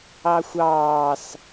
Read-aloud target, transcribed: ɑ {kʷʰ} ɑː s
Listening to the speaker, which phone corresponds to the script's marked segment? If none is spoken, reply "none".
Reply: xʷ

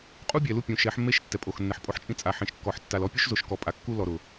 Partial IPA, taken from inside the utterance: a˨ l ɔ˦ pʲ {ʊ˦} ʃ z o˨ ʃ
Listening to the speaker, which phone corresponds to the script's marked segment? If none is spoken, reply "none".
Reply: u˦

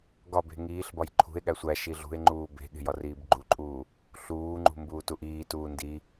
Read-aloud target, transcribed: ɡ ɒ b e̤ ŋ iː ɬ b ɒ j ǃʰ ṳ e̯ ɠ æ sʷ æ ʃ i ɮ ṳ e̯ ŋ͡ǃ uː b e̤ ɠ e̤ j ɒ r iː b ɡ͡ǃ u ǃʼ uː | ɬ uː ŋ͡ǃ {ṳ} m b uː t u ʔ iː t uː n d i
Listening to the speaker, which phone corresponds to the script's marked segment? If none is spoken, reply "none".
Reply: ṳ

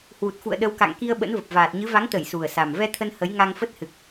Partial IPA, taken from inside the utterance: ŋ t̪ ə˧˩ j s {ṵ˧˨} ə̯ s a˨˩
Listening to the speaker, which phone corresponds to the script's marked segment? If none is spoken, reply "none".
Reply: u˨˩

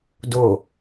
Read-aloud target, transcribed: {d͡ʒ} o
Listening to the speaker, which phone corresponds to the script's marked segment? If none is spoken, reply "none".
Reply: d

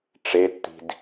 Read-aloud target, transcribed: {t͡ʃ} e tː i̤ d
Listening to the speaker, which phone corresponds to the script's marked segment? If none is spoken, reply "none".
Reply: ʈ͡ʂ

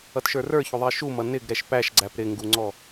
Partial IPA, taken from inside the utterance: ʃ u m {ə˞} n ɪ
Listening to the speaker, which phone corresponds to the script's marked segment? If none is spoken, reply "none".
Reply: ʌ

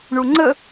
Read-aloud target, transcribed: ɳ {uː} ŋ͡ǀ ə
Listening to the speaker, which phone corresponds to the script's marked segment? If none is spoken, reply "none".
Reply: u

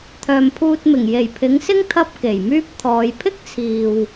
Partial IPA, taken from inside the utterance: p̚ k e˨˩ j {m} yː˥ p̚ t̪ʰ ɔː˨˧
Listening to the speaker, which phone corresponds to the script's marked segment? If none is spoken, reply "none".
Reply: m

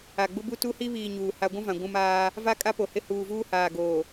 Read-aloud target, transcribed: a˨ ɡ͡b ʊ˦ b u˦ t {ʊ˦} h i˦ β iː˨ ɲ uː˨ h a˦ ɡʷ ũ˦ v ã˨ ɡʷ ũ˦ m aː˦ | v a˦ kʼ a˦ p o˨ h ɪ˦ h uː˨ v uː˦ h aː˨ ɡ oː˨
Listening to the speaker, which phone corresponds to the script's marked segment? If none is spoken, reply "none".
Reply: u˦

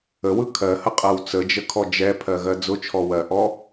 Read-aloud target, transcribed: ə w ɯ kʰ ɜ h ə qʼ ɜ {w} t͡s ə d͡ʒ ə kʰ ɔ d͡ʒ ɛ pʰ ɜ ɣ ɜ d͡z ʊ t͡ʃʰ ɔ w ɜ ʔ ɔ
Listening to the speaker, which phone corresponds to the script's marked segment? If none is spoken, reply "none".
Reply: w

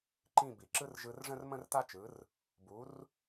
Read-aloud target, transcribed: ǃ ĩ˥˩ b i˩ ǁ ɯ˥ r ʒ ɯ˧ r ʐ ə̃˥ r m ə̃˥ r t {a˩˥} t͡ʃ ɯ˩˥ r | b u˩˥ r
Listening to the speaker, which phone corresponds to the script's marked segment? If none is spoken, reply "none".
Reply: a˥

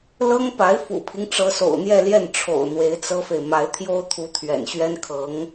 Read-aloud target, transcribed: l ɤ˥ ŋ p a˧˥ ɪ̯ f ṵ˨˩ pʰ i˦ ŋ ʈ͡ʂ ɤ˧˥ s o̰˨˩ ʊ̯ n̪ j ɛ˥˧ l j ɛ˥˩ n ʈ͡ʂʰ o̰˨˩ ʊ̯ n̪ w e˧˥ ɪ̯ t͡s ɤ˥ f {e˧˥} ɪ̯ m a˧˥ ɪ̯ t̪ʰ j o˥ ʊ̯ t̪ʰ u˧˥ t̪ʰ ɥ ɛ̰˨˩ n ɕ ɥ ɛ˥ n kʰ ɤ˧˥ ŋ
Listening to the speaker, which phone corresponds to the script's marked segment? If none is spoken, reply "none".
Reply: e˨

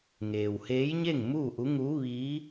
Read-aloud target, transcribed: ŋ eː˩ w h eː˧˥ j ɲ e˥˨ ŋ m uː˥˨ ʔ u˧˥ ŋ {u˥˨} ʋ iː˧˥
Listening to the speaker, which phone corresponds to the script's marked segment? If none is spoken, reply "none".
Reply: u˧˥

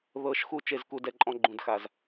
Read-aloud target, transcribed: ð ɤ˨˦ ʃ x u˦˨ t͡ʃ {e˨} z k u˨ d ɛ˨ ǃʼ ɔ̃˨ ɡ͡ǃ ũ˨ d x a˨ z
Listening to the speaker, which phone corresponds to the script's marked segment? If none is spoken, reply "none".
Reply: e˨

